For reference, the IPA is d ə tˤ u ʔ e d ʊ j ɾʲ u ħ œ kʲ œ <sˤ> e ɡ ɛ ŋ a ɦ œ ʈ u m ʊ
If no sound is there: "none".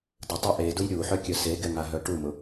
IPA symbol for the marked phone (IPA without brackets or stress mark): s